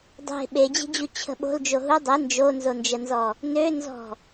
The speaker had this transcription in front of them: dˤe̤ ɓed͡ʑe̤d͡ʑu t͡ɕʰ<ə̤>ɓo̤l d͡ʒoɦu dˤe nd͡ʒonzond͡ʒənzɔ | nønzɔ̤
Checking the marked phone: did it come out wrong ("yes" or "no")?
no